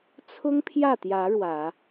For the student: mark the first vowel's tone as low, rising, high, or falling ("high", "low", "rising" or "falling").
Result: high